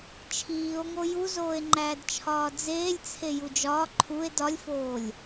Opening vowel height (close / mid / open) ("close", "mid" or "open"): close